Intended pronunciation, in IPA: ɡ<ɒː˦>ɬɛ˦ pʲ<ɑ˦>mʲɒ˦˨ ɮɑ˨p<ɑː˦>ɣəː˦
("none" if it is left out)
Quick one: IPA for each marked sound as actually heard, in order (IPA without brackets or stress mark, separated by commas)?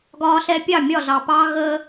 ɒː˦, ɑ˦˨, ɑː˦